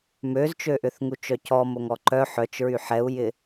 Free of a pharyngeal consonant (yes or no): no